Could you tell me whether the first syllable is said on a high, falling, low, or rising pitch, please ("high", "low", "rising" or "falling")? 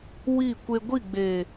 falling